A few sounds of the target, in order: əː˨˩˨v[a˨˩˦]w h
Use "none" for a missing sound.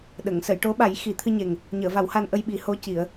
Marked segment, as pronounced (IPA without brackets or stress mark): a˨˩˦